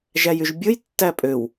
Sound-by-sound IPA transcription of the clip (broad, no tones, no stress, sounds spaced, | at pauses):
ʒ æ j y ʒ bʲ ɯ j tː æ pʼ ø w